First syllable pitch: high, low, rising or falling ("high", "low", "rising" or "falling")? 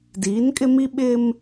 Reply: rising